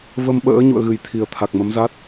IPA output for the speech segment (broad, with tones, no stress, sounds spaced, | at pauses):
v ə˧ m ɓ ə̰ː˧˥ ɲ ṵ˧˨ ə̯ ɣ ɨ˨˩ j t̪ʰ i˨˩ ə̯ t̪ʰ a˨˩ k̚ m ə˨˦ m z a˦˥ t̚